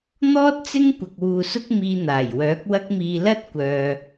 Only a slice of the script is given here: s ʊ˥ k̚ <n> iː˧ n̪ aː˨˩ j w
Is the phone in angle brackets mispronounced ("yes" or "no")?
yes